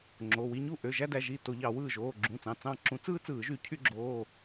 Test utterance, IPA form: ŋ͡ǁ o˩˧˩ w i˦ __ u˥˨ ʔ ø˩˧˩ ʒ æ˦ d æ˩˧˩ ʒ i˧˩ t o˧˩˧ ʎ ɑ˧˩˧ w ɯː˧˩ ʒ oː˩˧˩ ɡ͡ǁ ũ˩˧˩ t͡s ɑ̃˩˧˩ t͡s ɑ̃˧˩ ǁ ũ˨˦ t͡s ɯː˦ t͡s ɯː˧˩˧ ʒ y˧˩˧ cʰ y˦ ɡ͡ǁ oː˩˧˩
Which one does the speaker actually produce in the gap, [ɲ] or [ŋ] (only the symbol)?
ɲ